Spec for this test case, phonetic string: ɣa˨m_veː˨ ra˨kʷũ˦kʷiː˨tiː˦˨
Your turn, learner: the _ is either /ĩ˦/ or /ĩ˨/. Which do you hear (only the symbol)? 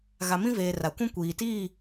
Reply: ĩ˦